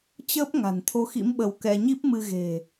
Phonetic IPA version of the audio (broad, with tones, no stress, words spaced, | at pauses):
t͡ɕəː˦˥p̚ ŋa̤˨˩nt̪ʰo˨˦xḭ˧˥m ɓə˧wkɛ˧ ɲi˦˥p̚mɨ˧ ɣe̤˨˩